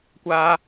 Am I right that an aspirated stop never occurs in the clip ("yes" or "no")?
yes